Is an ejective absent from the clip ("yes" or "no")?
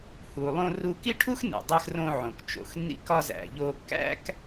yes